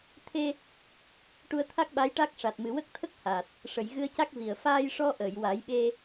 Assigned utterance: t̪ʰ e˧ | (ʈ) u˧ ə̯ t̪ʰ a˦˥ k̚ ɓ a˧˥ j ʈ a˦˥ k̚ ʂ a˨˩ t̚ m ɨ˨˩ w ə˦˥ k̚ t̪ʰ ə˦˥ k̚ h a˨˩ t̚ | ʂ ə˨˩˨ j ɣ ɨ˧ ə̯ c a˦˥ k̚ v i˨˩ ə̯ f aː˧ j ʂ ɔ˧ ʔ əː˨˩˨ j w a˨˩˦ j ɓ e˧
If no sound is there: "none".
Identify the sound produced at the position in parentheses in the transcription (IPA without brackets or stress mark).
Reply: ʈ